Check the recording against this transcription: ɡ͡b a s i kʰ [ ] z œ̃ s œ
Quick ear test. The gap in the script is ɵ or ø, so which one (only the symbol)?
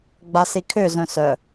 ø